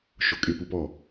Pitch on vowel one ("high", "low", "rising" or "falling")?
low